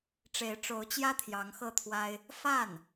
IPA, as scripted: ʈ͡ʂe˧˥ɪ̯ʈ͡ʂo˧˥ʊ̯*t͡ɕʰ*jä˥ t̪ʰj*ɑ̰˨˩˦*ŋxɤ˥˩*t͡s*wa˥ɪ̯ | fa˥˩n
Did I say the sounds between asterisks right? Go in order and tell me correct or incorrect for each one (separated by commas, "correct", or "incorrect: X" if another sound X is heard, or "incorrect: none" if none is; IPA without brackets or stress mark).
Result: incorrect: t͡ɕ, incorrect: ɑ˧˥, incorrect: t̪ʰ